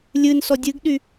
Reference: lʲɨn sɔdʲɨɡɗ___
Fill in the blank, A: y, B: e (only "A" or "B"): A